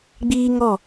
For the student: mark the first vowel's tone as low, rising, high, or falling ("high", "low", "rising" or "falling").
high